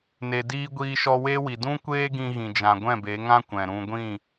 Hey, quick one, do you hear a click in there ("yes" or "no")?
no